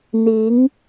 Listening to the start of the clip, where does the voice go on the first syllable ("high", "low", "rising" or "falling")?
rising